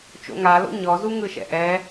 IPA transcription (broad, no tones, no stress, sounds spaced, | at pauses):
t͡ʃ o̰ ŋ a l o̰ ɲ ɔ z u ŋ ɯ ʃ ɛ̰ ʔ ɛ